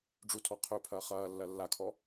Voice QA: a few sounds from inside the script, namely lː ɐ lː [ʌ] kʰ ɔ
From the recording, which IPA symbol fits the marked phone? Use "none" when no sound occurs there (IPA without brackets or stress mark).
a